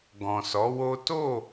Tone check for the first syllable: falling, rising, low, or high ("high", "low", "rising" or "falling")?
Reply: low